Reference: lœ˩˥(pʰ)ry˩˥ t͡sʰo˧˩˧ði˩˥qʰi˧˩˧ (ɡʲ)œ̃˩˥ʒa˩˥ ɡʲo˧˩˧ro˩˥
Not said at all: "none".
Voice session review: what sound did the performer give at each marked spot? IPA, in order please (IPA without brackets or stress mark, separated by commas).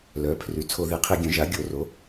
pʰ, ɡʲ